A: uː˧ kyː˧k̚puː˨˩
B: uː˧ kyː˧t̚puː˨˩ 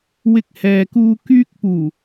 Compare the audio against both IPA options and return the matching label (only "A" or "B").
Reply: A